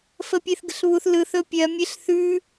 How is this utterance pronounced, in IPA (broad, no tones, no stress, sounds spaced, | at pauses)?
f ə pʲ e θ ɡ ə̤ ɬ β u θ l ɯ θ ɵ pʲ ɜ mʲ e ɬ θ ʉ